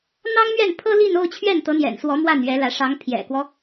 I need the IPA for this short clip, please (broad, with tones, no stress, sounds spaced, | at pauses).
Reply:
n̪ ɑ˥ ŋ m ɥ ɛ˥˩ n pʰ ɤ˥ l i˥˧ n o˥˧ ʊ̯ t͡ɕʰ ɥ ɛ˥˩ n t̪ ɤ˧˥ n̪ j ɛ̰˨˩ n s w ɔ˧˥ m w a˥˩ n ɥ ɛ˧˥ l ä˧˥ ʂ ɑ˧˥ ŋ pʰ j ɛ̰˨˩ k w ɔ˦